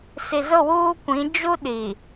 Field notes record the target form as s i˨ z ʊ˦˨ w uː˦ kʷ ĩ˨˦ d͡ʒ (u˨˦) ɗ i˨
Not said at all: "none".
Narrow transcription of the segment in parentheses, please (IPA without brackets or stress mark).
u˦